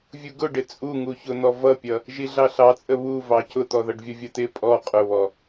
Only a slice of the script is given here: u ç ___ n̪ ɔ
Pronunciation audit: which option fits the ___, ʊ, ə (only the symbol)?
ʊ